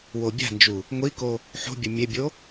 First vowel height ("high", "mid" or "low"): mid